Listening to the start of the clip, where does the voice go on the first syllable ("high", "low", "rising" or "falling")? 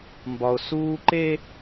high